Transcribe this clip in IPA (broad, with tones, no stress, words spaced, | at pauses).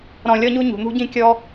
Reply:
ɾɔ̃˨lʲɔ˦ɲu˦ ɲṳ˩n̪ṳ˦ɟĩ˦ kʲɔ˦